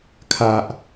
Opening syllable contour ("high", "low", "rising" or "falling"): low